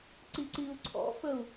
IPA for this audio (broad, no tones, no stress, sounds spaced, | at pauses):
ǀ i ǀ i u̯ ǀʰ ɔ̰ f ə u̯